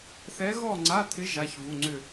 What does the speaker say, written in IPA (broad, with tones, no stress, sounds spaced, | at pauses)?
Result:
θ ɛ˧˥ ɣ ɔ˥˧ ŋ͡ǀ a˧˥˧ t̪ʰ ɪ˧˥ ʒ a˧˥˧ ç v u˧˥˧ ŋ͡ǀ ʏ˥˧